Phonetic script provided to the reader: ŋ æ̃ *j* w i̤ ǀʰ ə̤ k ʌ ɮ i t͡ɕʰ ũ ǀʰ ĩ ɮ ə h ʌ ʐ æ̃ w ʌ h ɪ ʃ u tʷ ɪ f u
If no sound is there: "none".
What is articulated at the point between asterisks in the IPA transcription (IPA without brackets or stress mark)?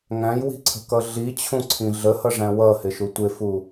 j